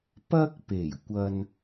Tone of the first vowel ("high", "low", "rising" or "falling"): high